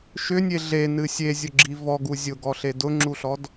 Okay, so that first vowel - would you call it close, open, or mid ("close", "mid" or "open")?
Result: close